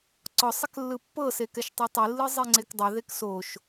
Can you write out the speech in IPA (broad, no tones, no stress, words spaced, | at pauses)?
ǀɔsˤɛk lːɯpːɤsekɛʃ tˤɛtˤilːɯ zˤiŋ͡ǀekdˤɛ ðeksoʃ